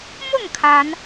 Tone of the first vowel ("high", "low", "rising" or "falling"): falling